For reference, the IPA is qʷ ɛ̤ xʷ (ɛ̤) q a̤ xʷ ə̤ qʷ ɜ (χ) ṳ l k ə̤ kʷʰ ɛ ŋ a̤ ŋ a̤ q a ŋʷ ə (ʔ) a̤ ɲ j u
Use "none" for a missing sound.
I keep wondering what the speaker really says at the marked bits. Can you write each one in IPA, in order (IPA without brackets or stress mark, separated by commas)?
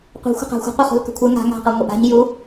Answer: ə̤, χ, ʔ